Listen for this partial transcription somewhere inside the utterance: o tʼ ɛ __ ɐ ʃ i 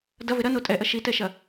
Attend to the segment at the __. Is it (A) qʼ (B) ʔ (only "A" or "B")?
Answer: B